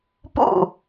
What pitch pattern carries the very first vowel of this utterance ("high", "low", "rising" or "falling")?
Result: falling